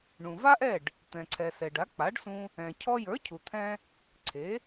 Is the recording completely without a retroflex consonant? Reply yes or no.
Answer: no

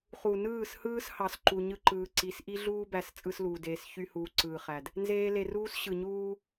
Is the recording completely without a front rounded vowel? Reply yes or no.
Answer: no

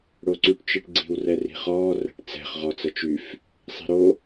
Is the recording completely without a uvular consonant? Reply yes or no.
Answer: no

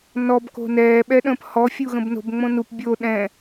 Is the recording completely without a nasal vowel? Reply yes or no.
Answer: no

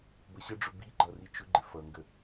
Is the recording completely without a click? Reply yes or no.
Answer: no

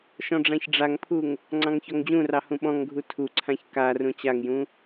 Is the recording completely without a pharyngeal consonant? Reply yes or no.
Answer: yes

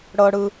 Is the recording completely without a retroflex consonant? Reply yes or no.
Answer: no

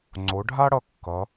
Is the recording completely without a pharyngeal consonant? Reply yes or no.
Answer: yes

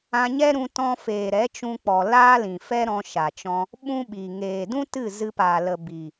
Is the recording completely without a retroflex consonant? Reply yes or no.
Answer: yes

